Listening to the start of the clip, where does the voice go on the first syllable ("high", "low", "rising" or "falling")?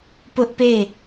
high